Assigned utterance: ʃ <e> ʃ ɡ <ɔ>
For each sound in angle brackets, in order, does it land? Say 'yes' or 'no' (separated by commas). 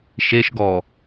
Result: yes, yes